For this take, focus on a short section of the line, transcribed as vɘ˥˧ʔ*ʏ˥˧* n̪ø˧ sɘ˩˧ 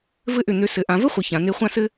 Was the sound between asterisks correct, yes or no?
no